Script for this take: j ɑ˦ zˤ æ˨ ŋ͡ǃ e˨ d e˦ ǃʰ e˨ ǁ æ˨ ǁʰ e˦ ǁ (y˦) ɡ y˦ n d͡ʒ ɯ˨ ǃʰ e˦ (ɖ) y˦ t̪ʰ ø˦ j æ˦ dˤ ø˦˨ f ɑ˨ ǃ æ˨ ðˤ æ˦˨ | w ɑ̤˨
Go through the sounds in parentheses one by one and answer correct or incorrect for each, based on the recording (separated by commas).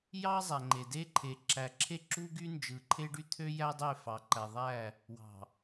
incorrect, correct